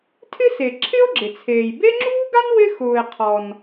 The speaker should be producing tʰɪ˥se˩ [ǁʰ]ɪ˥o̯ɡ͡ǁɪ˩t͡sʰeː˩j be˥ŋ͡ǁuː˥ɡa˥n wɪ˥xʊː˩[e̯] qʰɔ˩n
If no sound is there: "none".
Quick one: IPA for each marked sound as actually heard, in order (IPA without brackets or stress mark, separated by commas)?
ǁʰ, e̯